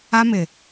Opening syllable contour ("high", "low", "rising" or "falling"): high